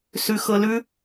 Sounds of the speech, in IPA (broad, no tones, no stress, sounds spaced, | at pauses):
s ʉ x ɤ l ʉ